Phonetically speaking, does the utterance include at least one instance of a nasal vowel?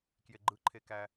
no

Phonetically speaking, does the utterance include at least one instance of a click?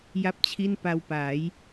no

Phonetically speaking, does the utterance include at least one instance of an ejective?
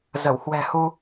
no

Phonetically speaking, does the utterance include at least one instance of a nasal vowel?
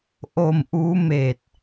no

